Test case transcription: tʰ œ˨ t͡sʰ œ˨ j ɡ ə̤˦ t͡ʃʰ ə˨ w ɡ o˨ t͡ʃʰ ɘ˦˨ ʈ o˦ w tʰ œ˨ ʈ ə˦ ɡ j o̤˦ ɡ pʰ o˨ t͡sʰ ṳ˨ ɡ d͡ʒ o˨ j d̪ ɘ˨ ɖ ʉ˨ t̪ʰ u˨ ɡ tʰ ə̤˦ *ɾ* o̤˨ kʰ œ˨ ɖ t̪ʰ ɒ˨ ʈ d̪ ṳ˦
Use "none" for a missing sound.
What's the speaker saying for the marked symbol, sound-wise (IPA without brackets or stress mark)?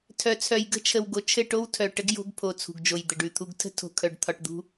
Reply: tʰ